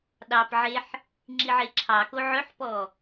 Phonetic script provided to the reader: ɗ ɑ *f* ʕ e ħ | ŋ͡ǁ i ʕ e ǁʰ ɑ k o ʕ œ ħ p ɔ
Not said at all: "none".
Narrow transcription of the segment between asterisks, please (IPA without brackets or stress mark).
p